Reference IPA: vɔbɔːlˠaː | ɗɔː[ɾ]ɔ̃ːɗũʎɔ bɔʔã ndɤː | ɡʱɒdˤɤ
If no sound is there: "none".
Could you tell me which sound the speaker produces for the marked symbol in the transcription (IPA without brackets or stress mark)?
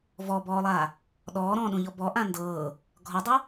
ɾ